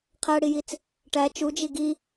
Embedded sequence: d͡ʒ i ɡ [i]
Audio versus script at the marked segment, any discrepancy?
no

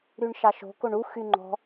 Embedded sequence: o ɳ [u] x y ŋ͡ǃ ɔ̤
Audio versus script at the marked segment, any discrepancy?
no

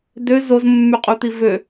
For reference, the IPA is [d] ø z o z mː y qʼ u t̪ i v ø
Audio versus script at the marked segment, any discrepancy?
no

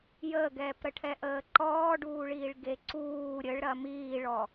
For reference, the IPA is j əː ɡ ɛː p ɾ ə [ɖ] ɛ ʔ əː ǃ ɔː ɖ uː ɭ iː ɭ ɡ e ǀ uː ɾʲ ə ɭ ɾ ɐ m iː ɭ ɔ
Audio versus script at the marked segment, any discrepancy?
yes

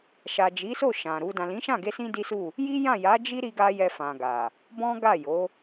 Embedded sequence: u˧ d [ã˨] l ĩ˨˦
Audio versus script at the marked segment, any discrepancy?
no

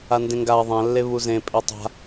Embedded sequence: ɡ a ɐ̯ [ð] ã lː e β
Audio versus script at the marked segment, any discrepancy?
yes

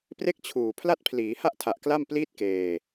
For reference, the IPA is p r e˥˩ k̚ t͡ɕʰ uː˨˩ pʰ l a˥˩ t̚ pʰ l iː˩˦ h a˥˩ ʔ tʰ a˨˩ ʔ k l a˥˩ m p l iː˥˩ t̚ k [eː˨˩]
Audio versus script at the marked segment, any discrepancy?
yes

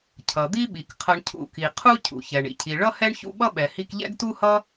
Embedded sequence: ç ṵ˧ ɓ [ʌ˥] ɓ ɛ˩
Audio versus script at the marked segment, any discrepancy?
no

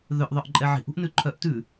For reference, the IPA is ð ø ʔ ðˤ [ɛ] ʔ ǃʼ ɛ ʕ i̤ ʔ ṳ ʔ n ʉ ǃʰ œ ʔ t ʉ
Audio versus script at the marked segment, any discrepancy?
yes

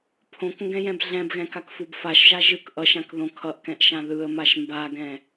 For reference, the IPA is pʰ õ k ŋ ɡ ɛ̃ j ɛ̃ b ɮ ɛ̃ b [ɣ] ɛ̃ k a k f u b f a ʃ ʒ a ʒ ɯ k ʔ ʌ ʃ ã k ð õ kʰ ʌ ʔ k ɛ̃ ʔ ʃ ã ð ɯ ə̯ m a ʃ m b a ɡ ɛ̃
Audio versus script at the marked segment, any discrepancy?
no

